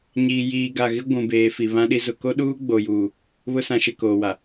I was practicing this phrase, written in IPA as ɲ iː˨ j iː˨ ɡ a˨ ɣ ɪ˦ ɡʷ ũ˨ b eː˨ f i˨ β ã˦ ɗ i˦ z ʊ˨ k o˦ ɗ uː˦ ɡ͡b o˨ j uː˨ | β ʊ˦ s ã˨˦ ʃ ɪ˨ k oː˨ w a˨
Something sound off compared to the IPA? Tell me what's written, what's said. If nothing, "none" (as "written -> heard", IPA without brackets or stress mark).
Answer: none